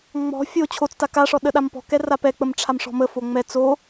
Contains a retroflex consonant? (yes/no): yes